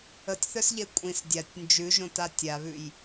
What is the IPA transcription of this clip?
ə tʲ θ œ s ʎ e kʷʼ ĩ s dʲ a tʲ n d͡ʒ ʉ ʒ õ t a tʲ a β ʉ j

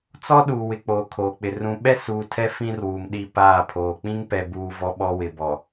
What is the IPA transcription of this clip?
t͡s ɔ˦ ɗ uː˨ w ɪ˨ k͡p oː˨ kʰ oː˨ k͡p ɪ˨ r ũ˨ ɓ ɛ˦ s uː˨ tʰ ɛ˦ f ĩ˦ r w uː˨ m ɗ i˦ p aː˦˨ pʰ oː˨ k͡p ĩ˦ ŋ p ɛ˨ b uː˨ v ɔ˦ ɓ ɔ˦ w ɪ˨ b ɔ˨

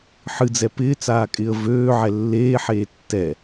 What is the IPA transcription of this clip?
ħ ɨ d͡z ɛ p ɪː t͡s aː kʼ ɪː ə̯ v øː ʕ ɛ lː eː ħ eː tː ɛ

